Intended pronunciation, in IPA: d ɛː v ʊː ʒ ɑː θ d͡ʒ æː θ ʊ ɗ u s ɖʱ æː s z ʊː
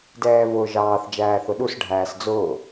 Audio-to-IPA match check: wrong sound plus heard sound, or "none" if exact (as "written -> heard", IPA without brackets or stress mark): z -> d͡z